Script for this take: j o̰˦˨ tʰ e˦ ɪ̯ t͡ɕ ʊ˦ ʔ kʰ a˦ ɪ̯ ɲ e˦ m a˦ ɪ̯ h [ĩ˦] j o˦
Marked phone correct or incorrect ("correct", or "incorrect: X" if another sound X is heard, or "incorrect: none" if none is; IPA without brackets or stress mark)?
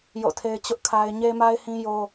correct